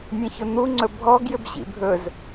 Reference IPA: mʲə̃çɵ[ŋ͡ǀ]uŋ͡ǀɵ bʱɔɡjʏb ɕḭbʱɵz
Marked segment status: incorrect: n̪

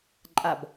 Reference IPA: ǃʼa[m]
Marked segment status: incorrect: b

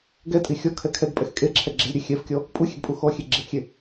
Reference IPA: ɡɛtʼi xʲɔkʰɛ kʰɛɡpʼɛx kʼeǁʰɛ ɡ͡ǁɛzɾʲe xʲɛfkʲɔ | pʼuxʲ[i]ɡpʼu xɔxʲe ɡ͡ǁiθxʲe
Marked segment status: incorrect: e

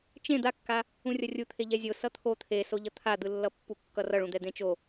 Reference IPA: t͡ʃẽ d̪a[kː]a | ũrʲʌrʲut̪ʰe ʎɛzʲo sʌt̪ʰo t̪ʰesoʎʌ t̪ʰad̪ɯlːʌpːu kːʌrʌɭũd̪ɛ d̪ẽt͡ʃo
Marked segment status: correct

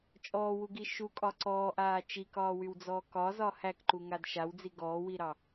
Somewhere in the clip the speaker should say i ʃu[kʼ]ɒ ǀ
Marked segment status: correct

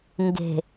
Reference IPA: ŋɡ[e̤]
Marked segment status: correct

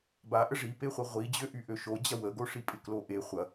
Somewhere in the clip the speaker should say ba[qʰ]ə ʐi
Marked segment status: incorrect: ʔ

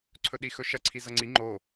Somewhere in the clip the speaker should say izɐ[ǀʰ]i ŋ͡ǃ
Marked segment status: incorrect: ŋ͡ǀ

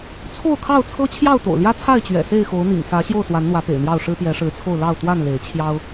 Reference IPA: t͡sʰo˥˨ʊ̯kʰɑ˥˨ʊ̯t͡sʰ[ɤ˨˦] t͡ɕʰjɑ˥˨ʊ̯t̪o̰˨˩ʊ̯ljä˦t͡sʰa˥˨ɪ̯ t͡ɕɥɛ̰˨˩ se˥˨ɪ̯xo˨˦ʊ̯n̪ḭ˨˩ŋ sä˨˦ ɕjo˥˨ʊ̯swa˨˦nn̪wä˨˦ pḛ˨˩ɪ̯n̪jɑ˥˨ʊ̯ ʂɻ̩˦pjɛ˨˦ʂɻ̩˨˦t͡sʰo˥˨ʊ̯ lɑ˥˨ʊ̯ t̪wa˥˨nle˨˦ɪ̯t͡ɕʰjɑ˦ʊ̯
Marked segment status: incorrect: ɤ˦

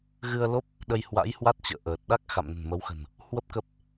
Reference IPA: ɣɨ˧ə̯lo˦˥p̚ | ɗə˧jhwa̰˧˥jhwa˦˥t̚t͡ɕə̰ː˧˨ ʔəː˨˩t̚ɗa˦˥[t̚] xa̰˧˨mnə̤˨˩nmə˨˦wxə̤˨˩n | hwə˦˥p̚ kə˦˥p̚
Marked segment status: incorrect: k̚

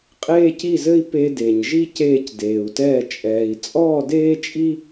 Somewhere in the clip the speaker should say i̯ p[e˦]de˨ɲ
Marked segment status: correct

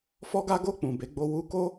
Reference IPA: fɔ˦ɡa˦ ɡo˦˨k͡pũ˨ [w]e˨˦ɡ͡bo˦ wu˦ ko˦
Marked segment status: incorrect: b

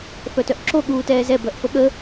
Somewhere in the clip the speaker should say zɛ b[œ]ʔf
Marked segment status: correct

